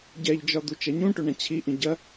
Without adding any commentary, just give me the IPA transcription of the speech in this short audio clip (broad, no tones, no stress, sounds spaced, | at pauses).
ɟ ɛ ʎ d͡ʒ ɒ d̪ u t͡ʃ ɐ ɲ ũ ʈ ɵ ɳ ɐ̃ t͡ɕʰ i ʔ ĩ ɟ ɐ